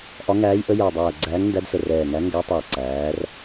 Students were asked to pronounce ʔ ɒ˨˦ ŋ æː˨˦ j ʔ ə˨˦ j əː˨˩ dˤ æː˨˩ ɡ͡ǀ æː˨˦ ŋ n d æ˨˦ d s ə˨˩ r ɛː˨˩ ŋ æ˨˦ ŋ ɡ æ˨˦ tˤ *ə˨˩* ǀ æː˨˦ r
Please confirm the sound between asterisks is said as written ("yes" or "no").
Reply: no